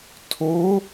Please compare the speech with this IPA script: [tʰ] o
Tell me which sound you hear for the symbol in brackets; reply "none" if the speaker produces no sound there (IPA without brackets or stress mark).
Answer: tʰ